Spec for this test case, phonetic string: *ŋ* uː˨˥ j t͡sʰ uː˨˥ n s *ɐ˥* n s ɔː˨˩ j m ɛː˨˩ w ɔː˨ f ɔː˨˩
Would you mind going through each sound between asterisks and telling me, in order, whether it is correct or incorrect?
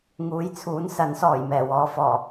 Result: correct, incorrect

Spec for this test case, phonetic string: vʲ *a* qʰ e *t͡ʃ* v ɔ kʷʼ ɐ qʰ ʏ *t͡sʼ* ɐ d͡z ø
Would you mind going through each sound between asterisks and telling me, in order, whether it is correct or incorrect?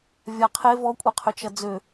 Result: correct, incorrect, incorrect

